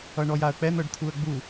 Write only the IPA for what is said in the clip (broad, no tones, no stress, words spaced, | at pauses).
ʌɳɔjaə̯k͡pɛ n̪ɤɖt̪ʰuə̯ɡ͡bu